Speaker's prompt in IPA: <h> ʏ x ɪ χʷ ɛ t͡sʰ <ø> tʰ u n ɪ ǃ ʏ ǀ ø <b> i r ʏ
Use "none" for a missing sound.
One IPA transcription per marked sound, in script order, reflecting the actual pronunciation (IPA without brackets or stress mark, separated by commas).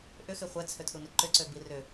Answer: ʔ, ø, b